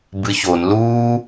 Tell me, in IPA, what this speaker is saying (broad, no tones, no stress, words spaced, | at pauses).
bɨçon luː